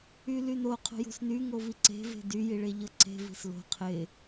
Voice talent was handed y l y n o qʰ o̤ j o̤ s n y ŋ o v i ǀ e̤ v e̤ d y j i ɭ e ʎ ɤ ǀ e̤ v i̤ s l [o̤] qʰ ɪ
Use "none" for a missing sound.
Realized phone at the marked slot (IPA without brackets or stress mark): o̤